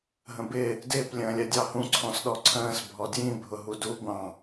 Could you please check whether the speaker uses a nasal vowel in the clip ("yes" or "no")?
yes